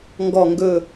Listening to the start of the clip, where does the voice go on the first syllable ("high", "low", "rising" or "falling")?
low